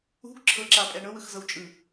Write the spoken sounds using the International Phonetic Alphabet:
ṳ ɡ ǁʰ ɤ ǁ a pʼ ɛ ɳ ɤ w ɯ x z ɤ w t͡ʃʼ ɯ

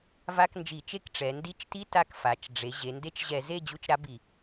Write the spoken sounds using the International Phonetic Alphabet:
v a˧˥˧ k n d͡ʒ i˧˩˧ t͡ʃ e˥˨ k ʈ͡ʂ ɛ˩˧ n d i˧˥ t͡ʃ t i˧˥˧ t a˧˥ k f a˩˧ t͡ʃ ɖ͡ʐ e˩˧ ʑ e˩˧ n d e˧˥ t͡ʃ ʑ ɛ˧˩˧ z e˥˨ d͡ʑ u˧˥ t͡ʃ ɾ a˧˥ b i˧˩˧

